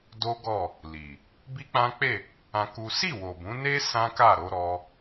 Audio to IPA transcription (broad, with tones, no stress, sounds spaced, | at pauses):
d o˦ ɡ ɔ˦˨ | l i˨ | b i˦ k͡p ã˦ k͡p e˦˨ | ã˦ k u˦ s i˦˨ w o˨ b ũ˨˦ n e˦ s ã˦ k a˦˨ ɾ o˧ ɾ ɔ˧